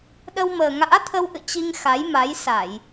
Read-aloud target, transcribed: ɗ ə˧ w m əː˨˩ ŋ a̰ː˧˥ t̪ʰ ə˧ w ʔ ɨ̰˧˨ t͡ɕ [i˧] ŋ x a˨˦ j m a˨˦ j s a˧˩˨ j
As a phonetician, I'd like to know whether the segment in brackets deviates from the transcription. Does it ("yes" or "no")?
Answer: no